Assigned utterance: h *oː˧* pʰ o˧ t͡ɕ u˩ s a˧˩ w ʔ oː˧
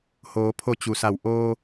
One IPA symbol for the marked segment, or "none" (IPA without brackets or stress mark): oː˩˧